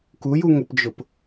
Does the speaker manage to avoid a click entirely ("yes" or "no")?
yes